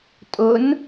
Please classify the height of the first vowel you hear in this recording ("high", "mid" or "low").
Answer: high